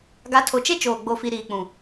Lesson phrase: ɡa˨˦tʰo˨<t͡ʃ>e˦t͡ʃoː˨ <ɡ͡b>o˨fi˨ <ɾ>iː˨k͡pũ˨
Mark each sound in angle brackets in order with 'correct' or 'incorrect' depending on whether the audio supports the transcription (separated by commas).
correct, correct, correct